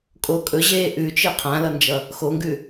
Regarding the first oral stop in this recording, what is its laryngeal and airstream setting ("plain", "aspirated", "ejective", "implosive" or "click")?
ejective